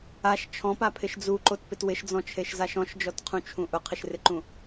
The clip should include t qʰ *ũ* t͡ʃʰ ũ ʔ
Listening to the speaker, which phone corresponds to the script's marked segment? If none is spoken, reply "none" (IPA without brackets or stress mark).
ũ